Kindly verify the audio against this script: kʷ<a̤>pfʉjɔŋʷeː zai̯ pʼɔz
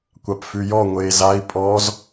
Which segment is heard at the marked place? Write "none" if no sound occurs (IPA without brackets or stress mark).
a